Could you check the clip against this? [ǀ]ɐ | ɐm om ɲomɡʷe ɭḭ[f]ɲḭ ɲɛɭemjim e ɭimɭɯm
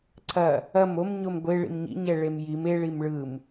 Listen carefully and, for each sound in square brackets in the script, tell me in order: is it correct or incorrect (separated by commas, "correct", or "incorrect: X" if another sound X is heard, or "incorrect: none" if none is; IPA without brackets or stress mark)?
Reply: correct, incorrect: m